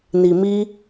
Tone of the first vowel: low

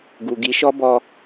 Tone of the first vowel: low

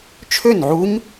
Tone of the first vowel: falling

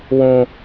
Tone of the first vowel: high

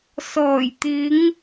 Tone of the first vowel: low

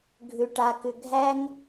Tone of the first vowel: low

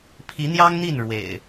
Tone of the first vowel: rising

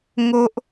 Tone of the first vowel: high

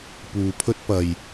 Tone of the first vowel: low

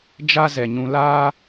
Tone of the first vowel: high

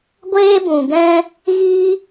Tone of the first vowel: high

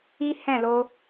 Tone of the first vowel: high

